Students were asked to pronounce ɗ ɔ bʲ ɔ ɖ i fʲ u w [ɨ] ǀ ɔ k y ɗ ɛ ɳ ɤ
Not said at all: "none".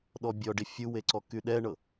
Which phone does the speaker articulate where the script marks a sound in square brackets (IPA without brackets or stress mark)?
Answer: e